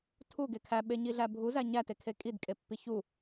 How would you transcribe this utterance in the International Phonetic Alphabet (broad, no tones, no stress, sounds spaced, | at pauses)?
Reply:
tʰ u ɡ e kʰ æ ɓ e ɲ i ɮ æ bʱ u z æ ɲ æ t e kʰ e kʼ i d kʼ e pː i ç u